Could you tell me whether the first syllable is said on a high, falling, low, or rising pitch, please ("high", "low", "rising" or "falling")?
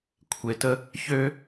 low